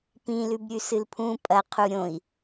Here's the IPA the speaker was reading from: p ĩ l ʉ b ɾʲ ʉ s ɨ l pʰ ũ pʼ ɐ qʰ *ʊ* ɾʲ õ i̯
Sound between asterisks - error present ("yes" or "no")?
yes